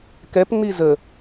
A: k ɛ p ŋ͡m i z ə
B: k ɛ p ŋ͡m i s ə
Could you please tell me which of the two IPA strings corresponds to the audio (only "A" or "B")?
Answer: A